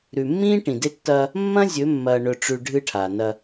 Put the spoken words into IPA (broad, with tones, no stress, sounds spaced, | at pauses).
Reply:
ɾ ʉ˨ mː ĩː˦ ʈ ĩ˨ d e˦ tː ɐː˦ | mː ɐ̃˦ zʲ ɵ˨˦ mː ɐː˨ ɳ ɵ˨ ʈ͡ʂ ʉ˨ ɖʱ ɨ˦ ʈʰ a˨ n ɐ˦